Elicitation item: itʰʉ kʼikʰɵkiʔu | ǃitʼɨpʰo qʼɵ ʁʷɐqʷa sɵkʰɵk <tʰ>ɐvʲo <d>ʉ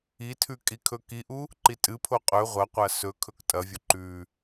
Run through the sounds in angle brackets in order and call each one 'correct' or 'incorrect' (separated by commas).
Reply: incorrect, incorrect